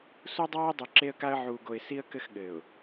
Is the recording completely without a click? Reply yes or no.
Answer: no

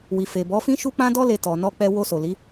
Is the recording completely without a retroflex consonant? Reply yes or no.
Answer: yes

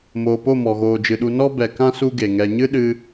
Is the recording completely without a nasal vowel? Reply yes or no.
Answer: no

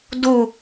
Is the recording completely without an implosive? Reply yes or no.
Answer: yes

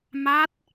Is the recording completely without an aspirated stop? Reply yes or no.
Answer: yes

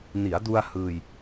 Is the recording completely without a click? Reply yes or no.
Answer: yes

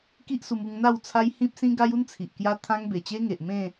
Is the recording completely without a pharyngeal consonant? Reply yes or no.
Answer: yes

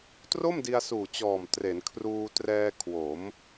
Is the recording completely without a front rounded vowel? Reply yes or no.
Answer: yes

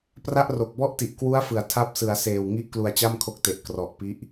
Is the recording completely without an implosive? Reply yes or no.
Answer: yes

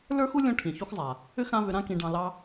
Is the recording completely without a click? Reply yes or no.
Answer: yes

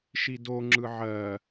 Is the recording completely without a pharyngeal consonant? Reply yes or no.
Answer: no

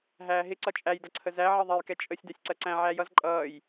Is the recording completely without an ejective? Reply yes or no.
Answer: no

